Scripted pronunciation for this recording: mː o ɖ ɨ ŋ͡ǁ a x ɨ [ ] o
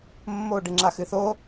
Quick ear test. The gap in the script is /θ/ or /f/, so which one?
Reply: θ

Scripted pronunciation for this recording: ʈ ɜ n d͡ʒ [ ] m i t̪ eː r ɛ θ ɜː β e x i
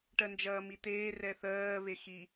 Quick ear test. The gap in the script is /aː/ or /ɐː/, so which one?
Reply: ɐː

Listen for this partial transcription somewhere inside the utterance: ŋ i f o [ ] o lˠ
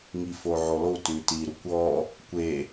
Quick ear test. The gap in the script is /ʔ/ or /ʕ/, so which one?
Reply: ʕ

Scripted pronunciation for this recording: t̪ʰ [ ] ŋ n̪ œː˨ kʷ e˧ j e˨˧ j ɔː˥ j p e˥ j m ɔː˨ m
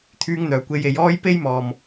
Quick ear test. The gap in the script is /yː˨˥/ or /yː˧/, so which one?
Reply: yː˧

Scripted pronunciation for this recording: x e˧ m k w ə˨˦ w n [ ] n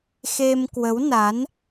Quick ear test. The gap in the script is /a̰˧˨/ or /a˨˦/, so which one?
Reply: a˨˦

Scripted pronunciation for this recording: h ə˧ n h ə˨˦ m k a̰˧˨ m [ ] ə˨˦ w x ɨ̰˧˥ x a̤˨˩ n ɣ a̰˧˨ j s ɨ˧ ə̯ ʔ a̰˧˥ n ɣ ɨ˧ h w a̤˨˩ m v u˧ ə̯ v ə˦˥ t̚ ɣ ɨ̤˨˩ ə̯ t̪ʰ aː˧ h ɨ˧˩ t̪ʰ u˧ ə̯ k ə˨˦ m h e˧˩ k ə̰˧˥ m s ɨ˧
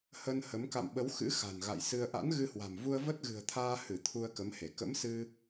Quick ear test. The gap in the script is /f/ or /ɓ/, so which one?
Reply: ɓ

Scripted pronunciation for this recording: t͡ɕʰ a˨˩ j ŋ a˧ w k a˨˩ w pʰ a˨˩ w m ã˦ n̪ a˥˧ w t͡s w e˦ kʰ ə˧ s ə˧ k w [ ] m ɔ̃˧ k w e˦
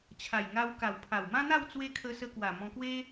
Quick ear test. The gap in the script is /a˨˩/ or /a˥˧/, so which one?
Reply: a˨˩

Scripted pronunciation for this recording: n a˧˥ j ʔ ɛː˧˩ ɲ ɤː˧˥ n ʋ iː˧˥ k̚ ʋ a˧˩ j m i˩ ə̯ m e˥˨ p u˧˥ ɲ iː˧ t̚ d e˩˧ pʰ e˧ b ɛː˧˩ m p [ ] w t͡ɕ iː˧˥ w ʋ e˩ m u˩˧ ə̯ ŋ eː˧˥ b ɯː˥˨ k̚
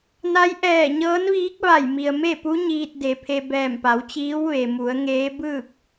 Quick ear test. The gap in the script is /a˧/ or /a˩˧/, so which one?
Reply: a˩˧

